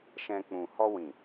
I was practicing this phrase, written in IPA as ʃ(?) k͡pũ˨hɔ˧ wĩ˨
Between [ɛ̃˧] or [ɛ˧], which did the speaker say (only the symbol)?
ɛ̃˧